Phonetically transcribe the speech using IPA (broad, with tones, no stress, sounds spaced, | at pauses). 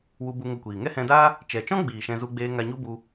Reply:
w u˧ b u˧ ŋ ə˧ kʷ iː˨ ŋ ɛ˦ h ɛ̃˧ d a˦ | t͡ʃ ɛ˨ t͡ʃ ɔ̃˦ ɡ͡b iː˨ ʃ ɛ̃˧ z u˧ ɡ͡b eː˧ ŋ a˧ ɲ u˦ b u˧